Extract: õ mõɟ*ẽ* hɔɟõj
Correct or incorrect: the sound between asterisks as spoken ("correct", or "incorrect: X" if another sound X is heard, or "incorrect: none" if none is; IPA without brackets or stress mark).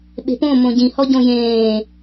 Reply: incorrect: ĩ